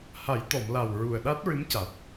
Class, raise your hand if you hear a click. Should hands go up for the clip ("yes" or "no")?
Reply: no